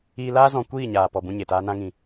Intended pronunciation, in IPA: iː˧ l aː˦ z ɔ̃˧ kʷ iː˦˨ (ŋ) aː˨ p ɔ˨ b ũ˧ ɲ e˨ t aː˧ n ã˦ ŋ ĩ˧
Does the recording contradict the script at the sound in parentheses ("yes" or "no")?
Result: yes